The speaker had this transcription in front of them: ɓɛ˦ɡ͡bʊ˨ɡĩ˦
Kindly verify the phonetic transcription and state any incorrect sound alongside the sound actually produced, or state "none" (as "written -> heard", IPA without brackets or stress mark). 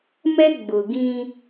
ɓ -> m